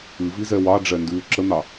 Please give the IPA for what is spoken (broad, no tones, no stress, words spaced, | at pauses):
ɨvizɛ wɑɖ͡ʐɛndʉː ǁən̪ɑ